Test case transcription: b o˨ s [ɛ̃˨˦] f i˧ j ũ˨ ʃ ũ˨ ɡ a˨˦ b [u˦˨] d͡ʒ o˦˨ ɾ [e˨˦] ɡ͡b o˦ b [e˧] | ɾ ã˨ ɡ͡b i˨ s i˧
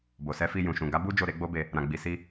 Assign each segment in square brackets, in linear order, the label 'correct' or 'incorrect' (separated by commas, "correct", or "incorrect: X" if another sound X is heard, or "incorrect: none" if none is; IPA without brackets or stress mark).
incorrect: ɛ˨˦, incorrect: u˦, correct, correct